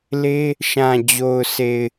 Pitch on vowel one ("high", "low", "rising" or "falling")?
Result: high